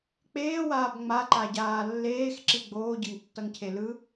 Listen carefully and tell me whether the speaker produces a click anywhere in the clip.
yes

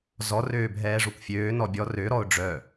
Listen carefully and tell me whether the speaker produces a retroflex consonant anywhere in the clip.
yes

